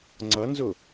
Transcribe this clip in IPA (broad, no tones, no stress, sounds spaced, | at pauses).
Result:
ŋ͡ǀ ʌ n z ʊ